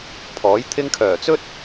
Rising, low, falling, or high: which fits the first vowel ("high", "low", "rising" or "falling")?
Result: rising